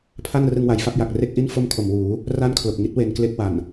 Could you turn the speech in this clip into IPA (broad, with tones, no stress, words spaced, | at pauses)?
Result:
pʰa˥˩nrɯ˧ŋwa˨˩j fa˥˩p̚ja˨˩k̚re˥˩k̚ʔi˥˩n fo˥˩mkʰo˨˩m wuː˩˦ | ra˥˩nkʰlo˨˩k̚ŋi˦˥t̚ we˧nkle˦˥k̚ wa˨˩n